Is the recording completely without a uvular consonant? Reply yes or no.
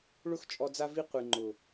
no